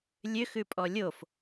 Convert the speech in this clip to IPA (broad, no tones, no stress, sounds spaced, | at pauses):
lʲ ø x ʉ pʼ ɔ lʲ o f